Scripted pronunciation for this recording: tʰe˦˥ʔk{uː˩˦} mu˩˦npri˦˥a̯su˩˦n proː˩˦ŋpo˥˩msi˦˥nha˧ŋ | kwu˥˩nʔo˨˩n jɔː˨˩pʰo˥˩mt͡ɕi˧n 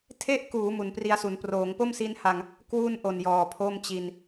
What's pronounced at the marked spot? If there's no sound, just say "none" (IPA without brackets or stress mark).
uː˩˦